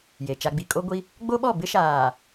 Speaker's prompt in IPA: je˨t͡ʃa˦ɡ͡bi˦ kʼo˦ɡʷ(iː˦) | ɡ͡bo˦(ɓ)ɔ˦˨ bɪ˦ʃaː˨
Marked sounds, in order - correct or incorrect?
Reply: incorrect, correct

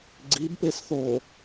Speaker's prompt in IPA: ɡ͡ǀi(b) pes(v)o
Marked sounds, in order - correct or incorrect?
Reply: correct, incorrect

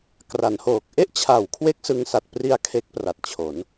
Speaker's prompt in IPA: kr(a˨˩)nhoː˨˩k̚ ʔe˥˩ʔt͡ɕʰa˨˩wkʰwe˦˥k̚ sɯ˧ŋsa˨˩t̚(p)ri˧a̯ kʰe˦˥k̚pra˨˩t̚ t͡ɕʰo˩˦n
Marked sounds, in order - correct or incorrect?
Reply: incorrect, correct

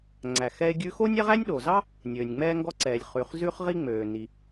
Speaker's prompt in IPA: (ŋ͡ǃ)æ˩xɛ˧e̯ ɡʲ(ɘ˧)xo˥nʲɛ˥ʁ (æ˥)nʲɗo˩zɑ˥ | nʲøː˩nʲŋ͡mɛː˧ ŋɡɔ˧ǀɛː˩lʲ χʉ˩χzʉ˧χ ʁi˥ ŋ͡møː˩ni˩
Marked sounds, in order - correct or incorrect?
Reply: incorrect, incorrect, correct

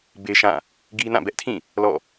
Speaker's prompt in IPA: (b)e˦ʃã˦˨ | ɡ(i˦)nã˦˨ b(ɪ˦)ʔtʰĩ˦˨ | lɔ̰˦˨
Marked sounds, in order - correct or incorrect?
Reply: correct, correct, incorrect

